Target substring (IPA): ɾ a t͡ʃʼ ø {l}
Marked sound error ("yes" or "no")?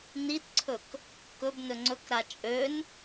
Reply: yes